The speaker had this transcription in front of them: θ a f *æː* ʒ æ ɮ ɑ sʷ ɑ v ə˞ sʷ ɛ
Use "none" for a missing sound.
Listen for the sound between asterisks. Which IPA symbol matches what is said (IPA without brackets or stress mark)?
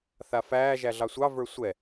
æː